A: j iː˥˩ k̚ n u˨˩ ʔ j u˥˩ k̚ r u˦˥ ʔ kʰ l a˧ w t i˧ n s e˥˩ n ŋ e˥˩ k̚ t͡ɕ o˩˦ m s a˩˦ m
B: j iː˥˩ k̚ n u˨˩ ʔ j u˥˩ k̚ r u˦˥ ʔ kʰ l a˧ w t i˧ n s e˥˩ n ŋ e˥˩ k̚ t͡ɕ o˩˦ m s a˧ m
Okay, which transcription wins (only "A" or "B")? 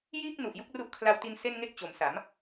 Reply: A